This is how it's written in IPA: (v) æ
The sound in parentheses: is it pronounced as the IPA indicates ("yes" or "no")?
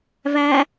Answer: yes